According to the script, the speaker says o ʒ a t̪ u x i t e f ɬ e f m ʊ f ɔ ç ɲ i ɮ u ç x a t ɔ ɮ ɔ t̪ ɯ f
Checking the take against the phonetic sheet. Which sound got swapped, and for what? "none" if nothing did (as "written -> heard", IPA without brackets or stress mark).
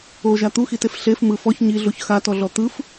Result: ʊ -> ɯ